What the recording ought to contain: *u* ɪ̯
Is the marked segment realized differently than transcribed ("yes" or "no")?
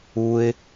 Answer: no